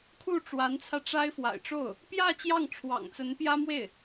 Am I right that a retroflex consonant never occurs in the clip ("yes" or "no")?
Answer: no